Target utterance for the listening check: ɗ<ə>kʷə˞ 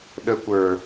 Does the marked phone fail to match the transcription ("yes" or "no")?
no